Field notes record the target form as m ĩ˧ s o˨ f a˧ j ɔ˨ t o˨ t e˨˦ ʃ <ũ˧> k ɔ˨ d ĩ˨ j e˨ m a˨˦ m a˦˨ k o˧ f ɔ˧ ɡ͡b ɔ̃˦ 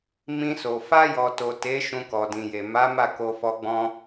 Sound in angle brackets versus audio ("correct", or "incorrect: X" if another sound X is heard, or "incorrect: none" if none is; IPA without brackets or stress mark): correct